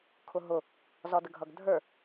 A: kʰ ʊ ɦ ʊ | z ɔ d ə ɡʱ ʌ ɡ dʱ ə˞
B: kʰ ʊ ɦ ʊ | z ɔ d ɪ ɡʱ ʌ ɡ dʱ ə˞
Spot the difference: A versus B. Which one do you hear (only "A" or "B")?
A